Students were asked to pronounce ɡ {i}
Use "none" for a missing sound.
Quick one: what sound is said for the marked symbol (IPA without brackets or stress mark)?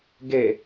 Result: e